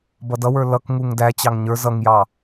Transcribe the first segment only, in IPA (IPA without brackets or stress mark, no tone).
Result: b